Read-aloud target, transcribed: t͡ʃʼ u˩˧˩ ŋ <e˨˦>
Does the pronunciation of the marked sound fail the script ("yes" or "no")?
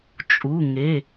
yes